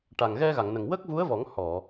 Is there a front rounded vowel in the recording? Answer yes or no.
no